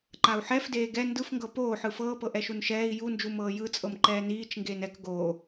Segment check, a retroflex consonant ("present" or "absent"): absent